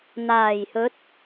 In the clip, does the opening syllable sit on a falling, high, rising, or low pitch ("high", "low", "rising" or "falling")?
low